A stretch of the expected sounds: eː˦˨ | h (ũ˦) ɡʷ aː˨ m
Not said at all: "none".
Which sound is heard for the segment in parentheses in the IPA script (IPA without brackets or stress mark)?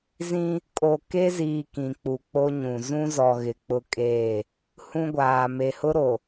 ũ˦